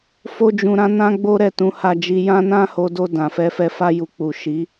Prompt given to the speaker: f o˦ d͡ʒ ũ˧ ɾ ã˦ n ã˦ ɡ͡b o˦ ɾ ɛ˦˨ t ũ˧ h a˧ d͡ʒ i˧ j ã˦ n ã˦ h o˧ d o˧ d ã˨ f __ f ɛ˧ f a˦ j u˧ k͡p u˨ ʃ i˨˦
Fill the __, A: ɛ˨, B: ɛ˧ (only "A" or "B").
B